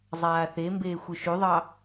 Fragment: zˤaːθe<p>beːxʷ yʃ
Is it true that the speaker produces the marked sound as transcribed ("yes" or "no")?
no